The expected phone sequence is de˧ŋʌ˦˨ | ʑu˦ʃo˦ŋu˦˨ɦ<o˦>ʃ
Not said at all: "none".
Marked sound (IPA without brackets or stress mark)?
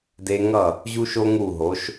o˨˦